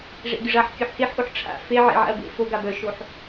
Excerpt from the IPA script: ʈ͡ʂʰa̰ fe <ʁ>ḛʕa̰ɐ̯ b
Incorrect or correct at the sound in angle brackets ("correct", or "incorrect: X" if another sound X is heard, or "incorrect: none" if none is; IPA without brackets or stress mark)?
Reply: incorrect: ʕ